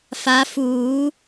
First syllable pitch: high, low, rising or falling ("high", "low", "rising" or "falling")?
rising